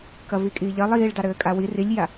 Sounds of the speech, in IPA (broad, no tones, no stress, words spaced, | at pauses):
kɐvikʼiːʎɐ lˠiːɭdɑ ɾɘːkʼawi rilʲja